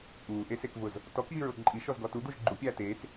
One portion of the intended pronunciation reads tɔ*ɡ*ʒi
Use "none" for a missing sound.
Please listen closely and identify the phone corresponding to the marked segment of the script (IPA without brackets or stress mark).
k